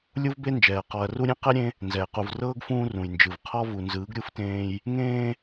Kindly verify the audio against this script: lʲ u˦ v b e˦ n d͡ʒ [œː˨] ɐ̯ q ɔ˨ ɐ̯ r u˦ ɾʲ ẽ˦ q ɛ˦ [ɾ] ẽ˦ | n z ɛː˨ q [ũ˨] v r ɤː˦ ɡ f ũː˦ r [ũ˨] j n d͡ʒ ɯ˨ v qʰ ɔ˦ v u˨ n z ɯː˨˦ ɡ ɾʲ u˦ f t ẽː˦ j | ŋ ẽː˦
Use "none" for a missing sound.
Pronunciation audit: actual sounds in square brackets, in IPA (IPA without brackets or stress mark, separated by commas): ɛː˨, ɾʲ, u˨, ũ˨